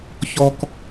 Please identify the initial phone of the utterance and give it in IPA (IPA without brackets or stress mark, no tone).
ç